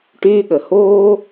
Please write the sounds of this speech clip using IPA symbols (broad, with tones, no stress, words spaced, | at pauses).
ʈyː˧ɠə˨ hoː˦